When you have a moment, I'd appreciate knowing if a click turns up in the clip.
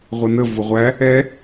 no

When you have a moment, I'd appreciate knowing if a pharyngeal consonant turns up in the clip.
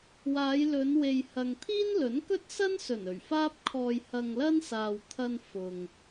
no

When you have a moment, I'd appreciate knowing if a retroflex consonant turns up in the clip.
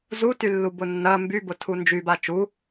no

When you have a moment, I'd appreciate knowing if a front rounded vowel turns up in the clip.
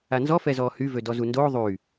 yes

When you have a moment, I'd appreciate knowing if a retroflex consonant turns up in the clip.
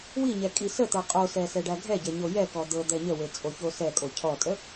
yes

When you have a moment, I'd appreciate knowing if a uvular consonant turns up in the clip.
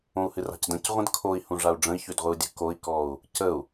yes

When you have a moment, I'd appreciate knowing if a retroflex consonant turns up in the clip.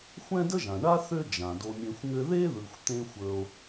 yes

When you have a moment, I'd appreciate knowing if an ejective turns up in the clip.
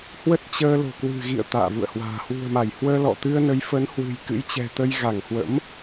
no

